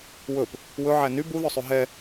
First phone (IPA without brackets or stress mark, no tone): w